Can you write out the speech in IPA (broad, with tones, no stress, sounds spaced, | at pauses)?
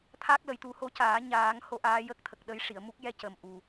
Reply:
t̪ʰ a˦˥ k̚ l ə˨˩˦ j t̪ u˨˩˦ h o˧ c aː˨˩˦ ɲ aː˨˩˦ ŋ h o˧˥ ʔ aː˧˥ j ə˦˥ k̚ t̪ʰ ə˨˩ k̚ ɗ ə˧˥ j ʂ i˨˩˨ ə̯ m u˦˥ k̚ j ɛ˧ c ə˨˩ m ʔ u˨˩